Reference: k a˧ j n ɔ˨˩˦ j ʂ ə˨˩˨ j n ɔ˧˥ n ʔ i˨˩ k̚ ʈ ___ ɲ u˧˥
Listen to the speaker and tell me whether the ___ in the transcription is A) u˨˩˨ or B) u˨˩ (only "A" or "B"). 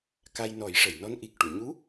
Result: A